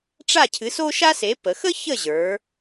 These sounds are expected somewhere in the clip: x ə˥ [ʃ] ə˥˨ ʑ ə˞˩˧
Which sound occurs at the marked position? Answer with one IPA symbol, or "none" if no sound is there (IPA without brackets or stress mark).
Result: ç